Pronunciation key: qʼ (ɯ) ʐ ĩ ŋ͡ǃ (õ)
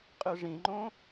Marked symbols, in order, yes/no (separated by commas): yes, yes